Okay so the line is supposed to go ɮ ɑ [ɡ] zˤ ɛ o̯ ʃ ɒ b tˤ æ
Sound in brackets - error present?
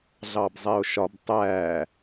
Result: yes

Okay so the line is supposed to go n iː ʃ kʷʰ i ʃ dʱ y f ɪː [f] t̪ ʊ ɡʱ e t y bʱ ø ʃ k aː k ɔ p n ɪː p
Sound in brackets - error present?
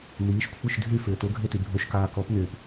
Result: yes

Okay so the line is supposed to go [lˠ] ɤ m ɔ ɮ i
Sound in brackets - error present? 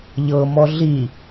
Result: yes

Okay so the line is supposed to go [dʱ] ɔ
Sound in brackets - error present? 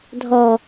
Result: no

